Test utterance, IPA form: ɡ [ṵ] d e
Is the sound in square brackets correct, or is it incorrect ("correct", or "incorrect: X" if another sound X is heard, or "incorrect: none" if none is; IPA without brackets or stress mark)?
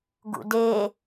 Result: correct